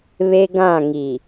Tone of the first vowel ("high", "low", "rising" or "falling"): high